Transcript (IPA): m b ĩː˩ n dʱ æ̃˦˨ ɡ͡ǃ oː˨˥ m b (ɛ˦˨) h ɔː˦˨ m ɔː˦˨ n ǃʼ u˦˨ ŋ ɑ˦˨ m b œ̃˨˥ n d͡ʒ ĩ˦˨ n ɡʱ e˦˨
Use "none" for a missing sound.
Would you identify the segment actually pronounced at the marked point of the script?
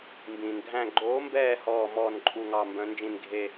ɛː˦˨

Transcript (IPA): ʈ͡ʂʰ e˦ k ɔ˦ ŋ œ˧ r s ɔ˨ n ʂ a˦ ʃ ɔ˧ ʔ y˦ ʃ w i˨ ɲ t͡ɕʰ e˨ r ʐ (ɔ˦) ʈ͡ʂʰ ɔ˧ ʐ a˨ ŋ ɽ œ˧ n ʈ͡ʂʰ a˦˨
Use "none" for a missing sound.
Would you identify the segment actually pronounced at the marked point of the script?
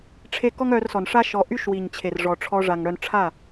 ɔ˨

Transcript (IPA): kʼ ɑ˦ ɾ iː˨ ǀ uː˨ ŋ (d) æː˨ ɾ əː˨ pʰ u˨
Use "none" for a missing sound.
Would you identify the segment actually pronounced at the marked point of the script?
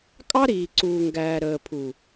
ɡ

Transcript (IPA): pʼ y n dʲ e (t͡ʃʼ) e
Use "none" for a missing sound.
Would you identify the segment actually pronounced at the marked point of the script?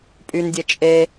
t͡ʃʼ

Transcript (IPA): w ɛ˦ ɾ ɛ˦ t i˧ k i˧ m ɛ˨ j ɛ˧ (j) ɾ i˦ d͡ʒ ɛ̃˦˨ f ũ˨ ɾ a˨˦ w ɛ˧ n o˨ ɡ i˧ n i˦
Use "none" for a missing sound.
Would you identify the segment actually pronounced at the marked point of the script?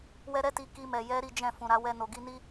none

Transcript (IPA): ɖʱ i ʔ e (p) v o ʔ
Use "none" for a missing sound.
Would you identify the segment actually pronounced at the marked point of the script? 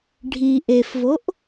f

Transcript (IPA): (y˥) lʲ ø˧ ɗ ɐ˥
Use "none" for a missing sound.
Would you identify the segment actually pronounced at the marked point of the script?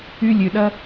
y˥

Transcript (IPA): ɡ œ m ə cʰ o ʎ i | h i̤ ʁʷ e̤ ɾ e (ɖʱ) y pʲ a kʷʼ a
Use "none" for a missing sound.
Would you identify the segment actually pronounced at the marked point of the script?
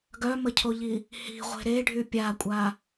ɖʱ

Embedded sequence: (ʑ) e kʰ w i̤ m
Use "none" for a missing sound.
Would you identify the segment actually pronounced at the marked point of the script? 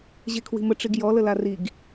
ʑ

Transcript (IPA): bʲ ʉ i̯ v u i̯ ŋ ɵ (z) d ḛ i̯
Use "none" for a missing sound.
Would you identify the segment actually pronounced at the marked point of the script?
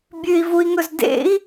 z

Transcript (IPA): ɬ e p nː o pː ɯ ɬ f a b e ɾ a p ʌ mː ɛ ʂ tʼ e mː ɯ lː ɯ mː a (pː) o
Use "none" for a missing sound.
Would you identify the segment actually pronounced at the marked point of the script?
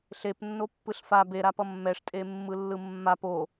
p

